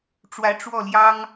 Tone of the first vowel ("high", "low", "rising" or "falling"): rising